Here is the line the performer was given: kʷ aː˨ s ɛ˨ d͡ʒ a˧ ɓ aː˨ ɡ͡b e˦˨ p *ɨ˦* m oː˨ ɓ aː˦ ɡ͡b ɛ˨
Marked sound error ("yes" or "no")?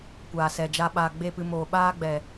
yes